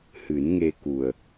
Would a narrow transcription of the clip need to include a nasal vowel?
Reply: no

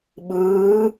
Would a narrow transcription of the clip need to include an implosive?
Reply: yes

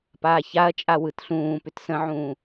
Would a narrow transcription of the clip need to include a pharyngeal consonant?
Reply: yes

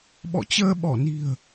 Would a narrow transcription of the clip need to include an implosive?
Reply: yes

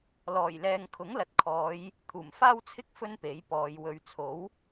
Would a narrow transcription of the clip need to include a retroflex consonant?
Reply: no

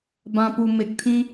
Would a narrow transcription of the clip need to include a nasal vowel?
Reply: yes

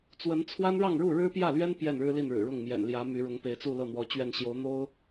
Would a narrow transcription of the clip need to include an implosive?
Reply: no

